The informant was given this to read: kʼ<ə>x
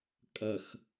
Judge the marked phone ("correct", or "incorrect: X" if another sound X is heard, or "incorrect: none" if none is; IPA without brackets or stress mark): correct